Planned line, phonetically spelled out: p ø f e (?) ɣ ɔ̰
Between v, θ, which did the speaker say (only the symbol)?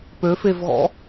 v